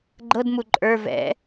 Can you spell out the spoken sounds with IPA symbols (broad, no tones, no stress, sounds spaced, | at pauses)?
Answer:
ɡ͡ǃ ɤ d m u ǃʼ ə˞ v ɛ̰